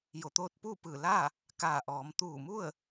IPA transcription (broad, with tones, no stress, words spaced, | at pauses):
jo˧˩t̪oː˥˨t̚ puː˥˨pɯː˧˩ laː˥˨ | kaː˧˩ʔɔː˩˧m t̪uː˧˩mu˥˨ə̯